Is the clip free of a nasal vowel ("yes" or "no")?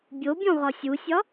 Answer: no